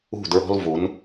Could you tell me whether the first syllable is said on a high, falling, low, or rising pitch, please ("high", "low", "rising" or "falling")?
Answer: falling